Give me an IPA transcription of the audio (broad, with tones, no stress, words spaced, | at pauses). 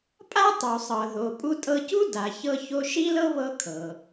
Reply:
pʼa˥tˤu˩ sˤɤ˩ðo˩ pʼu˧tʼɤ˧cu˥ da˩çɤ˧ ço˧ʃi˥lɤ˥ βɤ˧ kʰɤ˩